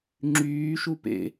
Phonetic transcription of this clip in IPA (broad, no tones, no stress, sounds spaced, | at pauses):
ŋ͡ǁ yː ʃ u p ḛ